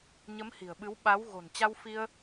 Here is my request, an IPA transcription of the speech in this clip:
ɲ ə˨˦ m h i̤˨˩ ə̯ ɓ ɨ˨˦ w ɓ a˨˦ w ɣ o̤˨˩ n t͡ɕ a˧ w f i˧ ə̯

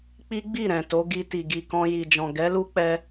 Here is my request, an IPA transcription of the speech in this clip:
k͡p i˦ ɡ͡b i˦˨ ɾ ɛ̃˨ t o˨˦ ɡ i˧ t i˨ ɡ i˨ k ɔ̃˧ j i˨ d͡ʒ ɔ̃˨ ɡ ɛ˨˦ l u˦ k͡p ɛ˧

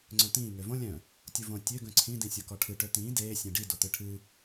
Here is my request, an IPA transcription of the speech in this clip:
ŋ͡ǀ œ̃ t̪ ĩː ŋ ø v õ lʲ œ̃ | tʲ u v õ tʲ ø ɡ œ̃ ǀʰ ĩ d ĩ sʲ o k ɔ ʈʰ ɨ ʈ ø t̪ ĩː d eː sʲ ẽ ɖ i d o t̪ ɨ ʈʰ ɨ

